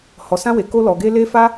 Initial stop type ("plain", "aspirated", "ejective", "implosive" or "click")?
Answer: plain